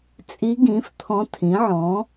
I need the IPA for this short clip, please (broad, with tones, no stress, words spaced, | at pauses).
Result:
t͡sʼi˧˥ɡĩ˩˥f t̪ʰɔ̃˧˥tʰĩ˩˥ʕɔ̃˩˥